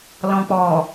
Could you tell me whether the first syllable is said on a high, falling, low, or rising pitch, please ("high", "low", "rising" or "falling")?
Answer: low